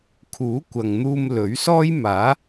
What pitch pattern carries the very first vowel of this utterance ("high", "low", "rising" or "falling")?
rising